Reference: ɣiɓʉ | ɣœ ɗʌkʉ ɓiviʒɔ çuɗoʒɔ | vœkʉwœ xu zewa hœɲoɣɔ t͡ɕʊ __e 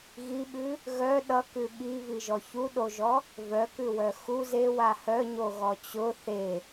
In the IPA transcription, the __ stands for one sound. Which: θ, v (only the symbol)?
θ